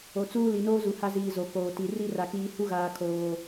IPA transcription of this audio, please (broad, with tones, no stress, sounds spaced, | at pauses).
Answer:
o˨ t͡s uː˦ l i˨ n oː˦ z u˨ h a˦ z iː˨ z o˨ k oː˨ t i˨ r i˦ r a˨ k iː˨ h u˦ ɣ aː˨ kʰ oː˨